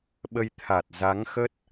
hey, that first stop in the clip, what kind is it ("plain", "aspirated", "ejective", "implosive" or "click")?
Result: implosive